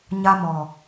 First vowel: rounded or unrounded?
unrounded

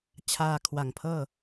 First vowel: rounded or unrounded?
unrounded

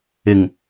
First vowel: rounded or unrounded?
unrounded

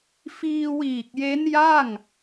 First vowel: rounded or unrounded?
unrounded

